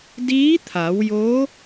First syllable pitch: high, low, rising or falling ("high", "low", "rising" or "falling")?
rising